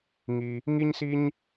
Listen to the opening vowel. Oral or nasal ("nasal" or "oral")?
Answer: oral